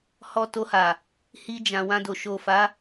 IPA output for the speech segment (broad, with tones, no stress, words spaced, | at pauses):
hɔ˧to˧ha˨ | hi˧ d͡ʒã˨wã˧do˨ ʃo˨ fa˨˦